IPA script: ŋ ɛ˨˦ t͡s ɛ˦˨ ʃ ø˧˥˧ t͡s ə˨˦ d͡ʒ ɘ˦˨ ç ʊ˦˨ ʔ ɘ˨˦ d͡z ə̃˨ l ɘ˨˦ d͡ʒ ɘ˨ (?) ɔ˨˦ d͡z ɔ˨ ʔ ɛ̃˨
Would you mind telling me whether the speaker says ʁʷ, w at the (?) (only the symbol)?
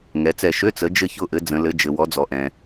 w